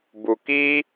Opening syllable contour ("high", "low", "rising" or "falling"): low